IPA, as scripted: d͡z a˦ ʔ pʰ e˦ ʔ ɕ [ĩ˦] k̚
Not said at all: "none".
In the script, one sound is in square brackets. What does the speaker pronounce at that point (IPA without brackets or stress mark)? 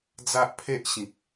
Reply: ĩ˨